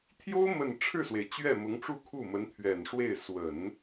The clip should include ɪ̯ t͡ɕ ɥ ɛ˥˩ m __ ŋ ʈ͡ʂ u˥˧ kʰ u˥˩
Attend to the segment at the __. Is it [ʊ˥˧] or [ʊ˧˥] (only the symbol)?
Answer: ʊ˧˥